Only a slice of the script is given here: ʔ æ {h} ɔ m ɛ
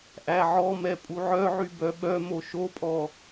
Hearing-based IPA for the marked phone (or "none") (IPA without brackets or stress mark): ʕ